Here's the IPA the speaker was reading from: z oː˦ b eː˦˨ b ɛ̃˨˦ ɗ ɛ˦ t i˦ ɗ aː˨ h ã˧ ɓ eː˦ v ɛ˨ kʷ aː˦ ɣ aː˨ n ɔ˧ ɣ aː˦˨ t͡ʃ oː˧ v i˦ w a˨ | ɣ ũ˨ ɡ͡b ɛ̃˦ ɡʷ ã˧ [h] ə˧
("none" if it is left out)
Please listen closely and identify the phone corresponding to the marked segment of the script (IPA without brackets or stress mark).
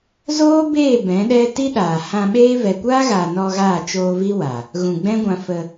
f